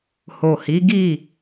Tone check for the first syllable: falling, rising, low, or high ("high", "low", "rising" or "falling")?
low